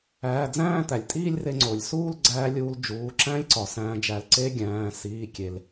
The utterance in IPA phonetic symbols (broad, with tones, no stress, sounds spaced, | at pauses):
æː˩˧˩ d͡z æ̃ː˥˧ t̪ æ˩ lʲ tʼ iː˥˧ lʲ r e˧ ŋ͡ǀ o˩ lʲ s uː˥˧ l ɡ͡ǀ æː˧ lʲ uː˧ l d͡ʒ uː˩˧˩ ǁ æ̃˦˥ lʲ ǀ ɒ˩ s æ̃ː˧ d͡ʒ æ˧ l ǀ e˦˥ ɡʲ æ̃ː˩˧˩ s iː˩˧˩ kʲ e˩ l